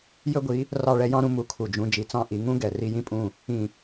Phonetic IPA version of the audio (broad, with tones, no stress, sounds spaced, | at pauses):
j ɵ˥ ɡʷ i˩˥ | r ɑ˥˩ ɭ ɛ˥ j ɑ̃˥ ɾ ũ˥ m u˩˥ kʰ u˩ d͡ʒ ũ˧ d͡ʒ i˩˥ t͡s ɑ̃˥˩ ʔ i˩˥ ŋ ũ˥ ɡ ɛ˩ r i˥ j ĩ˥ pʼ ũ˥˩ | ĩ˥˩